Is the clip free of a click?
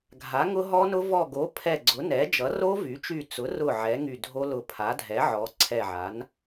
no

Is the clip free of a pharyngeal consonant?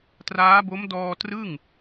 yes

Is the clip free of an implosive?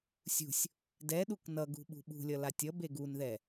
no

